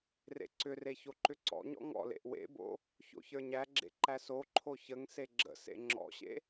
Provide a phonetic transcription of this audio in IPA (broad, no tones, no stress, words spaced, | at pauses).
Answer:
rḛǀʏre çoǃʏǀɔ̰ɲɔ̰ ŋɔ̰lḛʔ wḛbo̰ | ço̰çə˞ɲæɡ͡ǁḛ ǃæsoǃʰo çəŋ seɡ͡ǁə̰sḛ ŋ͡ǁɔ̰ɕḛ